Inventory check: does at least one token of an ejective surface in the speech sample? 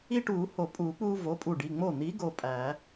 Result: yes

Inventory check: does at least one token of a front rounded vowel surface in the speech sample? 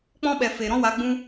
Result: no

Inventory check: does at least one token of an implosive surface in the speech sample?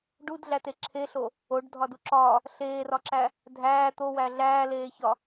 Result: no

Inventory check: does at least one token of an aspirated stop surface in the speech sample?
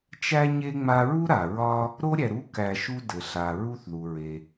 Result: no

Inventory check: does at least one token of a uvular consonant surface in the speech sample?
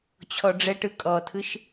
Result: no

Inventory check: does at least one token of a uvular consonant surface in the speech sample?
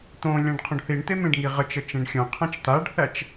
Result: yes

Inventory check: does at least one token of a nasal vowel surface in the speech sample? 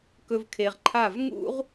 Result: no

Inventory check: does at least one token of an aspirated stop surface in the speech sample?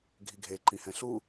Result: no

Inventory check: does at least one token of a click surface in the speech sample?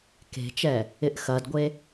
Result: no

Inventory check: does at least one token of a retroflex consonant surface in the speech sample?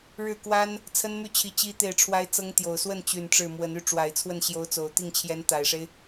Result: yes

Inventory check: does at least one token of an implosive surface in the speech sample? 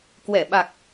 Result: yes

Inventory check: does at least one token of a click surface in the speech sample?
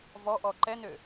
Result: yes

